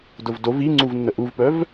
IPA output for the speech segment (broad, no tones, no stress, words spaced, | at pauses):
dʊvdov iŋ͡ǀuvnːə ʔuvpœv